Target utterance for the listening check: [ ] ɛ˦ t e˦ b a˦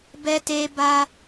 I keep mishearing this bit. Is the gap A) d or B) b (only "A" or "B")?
B